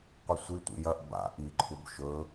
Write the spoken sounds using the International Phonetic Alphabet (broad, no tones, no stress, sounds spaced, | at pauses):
qʷ ɨ sʷ i tʷ ḭ j ɐ ʔ b a̰ ʔ i ǃʰ u b ʃ ɵ